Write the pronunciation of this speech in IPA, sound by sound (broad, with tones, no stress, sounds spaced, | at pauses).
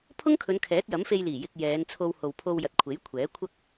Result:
pʰ ʊ˥ ŋ kʰ ɵ˨˧ n kʰ ɛː˨˥ t̚ j ɐ˨˥ m f e˧ j l iː˨˩ j ɪ˨ k̚ j ɛː˨˧ n t͡sʰ o˧ w h o˨ w pʰ o˧ w j ɐ˨ t̚ kʷʰ e˨˥ j kʷʰ ɛː˨˥ kʷʰ ɐ˥ k̚